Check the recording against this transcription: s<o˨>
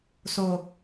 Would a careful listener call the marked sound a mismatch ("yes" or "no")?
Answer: no